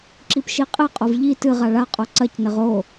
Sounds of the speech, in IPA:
ǁipʃiqʼeqʼov ʎi tɨʁa ɭaqʼo ǀɐcnɘʁ o

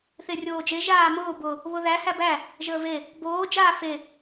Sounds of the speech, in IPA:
θerʲoːd͡ʒe ʒaːmʊː bʊ | βʊðæ hæbæ | ʒəːve | boː d͡ʒaːfe

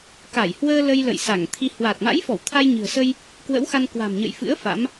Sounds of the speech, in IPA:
ka˧˩jhwəː˧ lə˧jlə̰˧˨j sa˧˩ŋt̪ʰi˧ hwa˨˩t̚ma̰˧˥jfɔ˧˩w t̪ʰa˧jɲɨ̤˨˩ə̯sə˧j | kwə̰˧˥wxa˧n kwa̤˨˩mɲə̰˧˨jfɨ̰˧˥ə̯ fa̰˧˥m

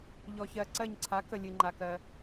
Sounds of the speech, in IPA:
ʎɔ˩çɜ˩ ǀɜ˧˩ɲǀʰa˩˥kə˩ lʲɨ˩ŋ͡ǃa˩kɜ˩

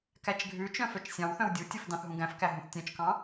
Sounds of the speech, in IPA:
kæt͡ʃɡʱʉt͡ʃœ̃ fœt͡ʃsʲɑ̃wθœ̃w dʲutʲɵf dɑ̃θɦũɡæ̃fkæ ɦũθtʲœ̃t͡ʃkɑ̃

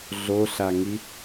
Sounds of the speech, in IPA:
ɮoɬaŋi

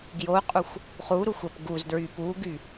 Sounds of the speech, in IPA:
ɡjoqʼuxʷ | χuɾuxʷ əp ɡuzdɹy puɡy

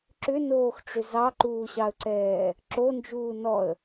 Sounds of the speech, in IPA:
ǁʏnoːxʈ͡ʂʏ zɑǃuːɕɑə̯ǀɛː | ǁond͡ʒuː nɔə̯

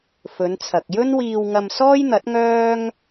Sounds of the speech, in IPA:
fɵ˨˧nt͡sʰɐ˨k̚ jɵ˥nwiː˧wŋɐ˧m sɔː˥jn̪ɐ˨˥t̚ŋœː˥ŋ

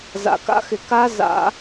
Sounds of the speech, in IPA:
za̰˩ka̰˥˧xɪ˩ ka˦˥ za̰˧˩˧

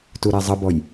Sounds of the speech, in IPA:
tuɾazˤʌbɔj

